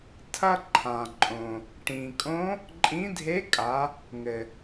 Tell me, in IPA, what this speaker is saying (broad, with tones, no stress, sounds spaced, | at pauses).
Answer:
tʰ ɐ˥ ǃʰ ã˩ ǃʼ õ˩ | ʈ ĩ˩ kʼ õ˧˥ | ǃʼ ĩ˧˥ dʱ e˧˥ kʼ a˩˧ | ŋ ɘ˩